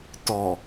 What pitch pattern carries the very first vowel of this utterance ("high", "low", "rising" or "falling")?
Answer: low